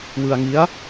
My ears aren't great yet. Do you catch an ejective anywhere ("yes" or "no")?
no